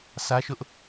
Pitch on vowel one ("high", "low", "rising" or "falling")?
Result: high